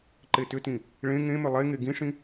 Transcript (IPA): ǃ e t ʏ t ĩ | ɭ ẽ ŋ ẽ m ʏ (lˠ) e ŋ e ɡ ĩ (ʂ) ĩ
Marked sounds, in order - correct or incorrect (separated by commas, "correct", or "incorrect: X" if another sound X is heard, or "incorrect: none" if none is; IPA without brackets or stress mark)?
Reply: correct, correct